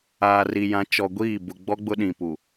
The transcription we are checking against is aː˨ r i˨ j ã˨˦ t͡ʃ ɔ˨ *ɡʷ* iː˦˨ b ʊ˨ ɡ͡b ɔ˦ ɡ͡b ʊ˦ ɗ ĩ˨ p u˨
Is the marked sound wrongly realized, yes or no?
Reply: no